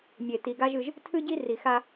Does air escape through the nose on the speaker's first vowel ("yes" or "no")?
no